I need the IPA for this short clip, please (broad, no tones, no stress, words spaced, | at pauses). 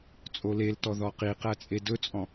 t͡sʼoleltɔ ðɔqiqæt͡sʼe dɵt͡sʼɔ̃